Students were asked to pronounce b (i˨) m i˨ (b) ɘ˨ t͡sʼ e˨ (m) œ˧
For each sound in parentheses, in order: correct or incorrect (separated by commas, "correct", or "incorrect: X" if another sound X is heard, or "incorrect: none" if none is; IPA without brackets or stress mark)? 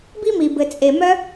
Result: incorrect: i˦, correct, correct